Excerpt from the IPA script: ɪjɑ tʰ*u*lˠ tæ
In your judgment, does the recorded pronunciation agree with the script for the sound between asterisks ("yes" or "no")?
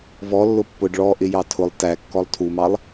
no